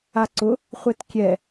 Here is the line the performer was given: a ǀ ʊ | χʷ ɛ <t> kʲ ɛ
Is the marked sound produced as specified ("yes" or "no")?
yes